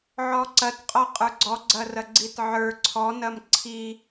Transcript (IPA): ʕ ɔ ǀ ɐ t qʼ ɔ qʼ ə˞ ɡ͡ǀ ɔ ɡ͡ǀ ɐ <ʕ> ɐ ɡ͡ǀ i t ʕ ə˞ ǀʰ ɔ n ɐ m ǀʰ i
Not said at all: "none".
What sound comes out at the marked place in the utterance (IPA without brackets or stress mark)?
r